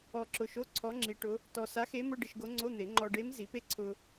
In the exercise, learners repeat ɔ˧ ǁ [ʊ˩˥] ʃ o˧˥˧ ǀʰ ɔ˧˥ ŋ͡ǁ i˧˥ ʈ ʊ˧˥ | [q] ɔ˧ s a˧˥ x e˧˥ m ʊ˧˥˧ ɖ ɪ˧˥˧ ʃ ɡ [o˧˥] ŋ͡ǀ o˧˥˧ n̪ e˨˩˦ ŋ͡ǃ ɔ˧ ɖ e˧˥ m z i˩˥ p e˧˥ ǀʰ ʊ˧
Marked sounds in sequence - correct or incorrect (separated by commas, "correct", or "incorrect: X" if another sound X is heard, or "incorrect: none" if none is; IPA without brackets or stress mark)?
incorrect: ʊ˧, incorrect: t, correct